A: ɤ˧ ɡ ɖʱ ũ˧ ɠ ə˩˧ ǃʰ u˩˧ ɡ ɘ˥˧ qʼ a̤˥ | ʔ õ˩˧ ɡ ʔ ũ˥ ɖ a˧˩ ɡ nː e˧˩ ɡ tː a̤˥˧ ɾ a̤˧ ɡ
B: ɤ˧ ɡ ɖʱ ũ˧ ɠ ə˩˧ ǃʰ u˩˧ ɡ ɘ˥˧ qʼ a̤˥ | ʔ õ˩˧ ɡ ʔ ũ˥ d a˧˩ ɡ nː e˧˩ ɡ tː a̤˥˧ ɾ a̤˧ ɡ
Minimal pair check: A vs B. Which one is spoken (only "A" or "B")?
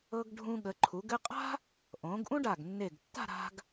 A